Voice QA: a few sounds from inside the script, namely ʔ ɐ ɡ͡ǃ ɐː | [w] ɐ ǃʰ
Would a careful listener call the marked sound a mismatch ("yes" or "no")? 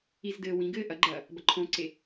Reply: yes